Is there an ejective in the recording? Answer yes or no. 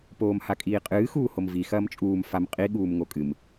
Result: yes